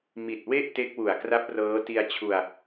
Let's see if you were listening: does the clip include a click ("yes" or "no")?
no